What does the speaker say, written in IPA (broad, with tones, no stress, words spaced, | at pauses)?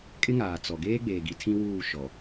kʼɪ˦ŋaː˨ t͡sɔ˨ ɡeː˦ɡ͡beː˨ɡi˨ tʰĩ˦wuː˦˨ ʃɔ˨